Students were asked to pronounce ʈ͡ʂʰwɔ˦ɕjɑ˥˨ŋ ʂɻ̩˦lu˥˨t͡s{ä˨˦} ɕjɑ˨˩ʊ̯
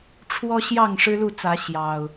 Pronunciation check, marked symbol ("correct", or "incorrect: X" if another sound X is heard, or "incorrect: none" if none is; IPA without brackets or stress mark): correct